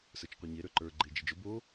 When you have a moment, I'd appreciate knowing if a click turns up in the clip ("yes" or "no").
yes